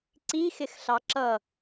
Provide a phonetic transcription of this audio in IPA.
ǀ i x ɪ x ɬ ɑ ǁ ʌ

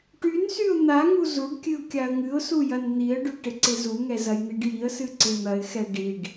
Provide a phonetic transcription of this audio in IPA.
ʈ y n s y ʊ̯ n̪ a ŋ u z u ɖ kʲ ɨ ʊ̯ kʲ a ə̯ ŋ ɨ ʊ̯ s u j ɐ n n̪ i ə̯ ɖ y ʈ ɪ ǀ ɪ z u ŋ ɛ z ɐ j n̪ i ɖ j i ə̯ s ɨ ǀ ɪ n̪ ɐ ɪ̯ x ɛ ɖ i ɖ

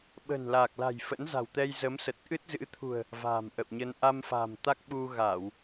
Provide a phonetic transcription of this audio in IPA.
ɓ ə̤˨˩ n l a˨˩ k̚ l a̤˨˩ j f ə̰˧˥ n z a̤˨˩ w t̪ ɛ˧ j z ə˨˦ m s ə˨˩ t̚ ʔ ɨ˦˥ t̚ z ɨ̰˧˥ t̪ʰ ṳ˨˩ ə̯ | v a̤˨˩ m ʔ ə̰˧˨ w ɲ ə˧ n ʔ a˧ m f a̤˨˩ m t̪ a˦˥ k̚ ɓ u˧ ɣ a˧˩˨ w

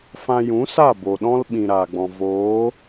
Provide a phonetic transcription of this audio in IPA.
f ã˧ j ũ˨˦ s a˦˨ b o˨ ɗ ɔ̃˦ l ɓ ĩ˨ ɾ aː˨ ɡ͡b ɔ̃˨ v oː˨˦

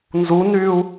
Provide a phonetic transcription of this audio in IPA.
n z u n yː u̯

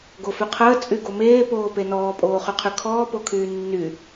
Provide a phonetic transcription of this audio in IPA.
ɡ o f y qʰ əː t͡sʼ y ɡ o m eː p oː p e n ɔː pʼ oː χ y qʰ y kʰ ɔː p o kʰ yː nː y

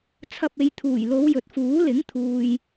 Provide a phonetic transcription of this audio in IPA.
t͡sʰ ɐ˧ p̚ e˨˧ j t̪ʰ uː˨˩ j l o˨˧ w j ɵ˨ t̚ f uː˨˥ l ɪ˨˥ ŋ t̪ʰ uː˨ j

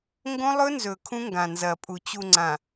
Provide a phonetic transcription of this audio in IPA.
ŋ ɡ õ˦ lˠ ɵ˦ n z ɵ˨ kʰ ũ˦ ŋ ɡ ã˨ n z ɐ˨ pʼ u˨ t͡ɕ u˨ ŋ͡ǀ ã˨

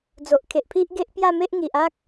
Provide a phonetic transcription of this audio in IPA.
d͡z o˨ ʔ kʰ e˨ ʔ pʰ i˦ ʔ ɡ e˦ ʔ p j a˥˧ m e˦ ʔ ŋ i˨ ʔ a˦ k̚

